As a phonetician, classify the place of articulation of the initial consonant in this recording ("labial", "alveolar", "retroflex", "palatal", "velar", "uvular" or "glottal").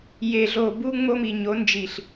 palatal